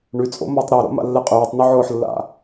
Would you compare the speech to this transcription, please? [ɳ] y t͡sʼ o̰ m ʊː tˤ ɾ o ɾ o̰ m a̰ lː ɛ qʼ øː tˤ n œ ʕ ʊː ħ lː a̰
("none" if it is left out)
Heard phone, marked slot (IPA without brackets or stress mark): ɳ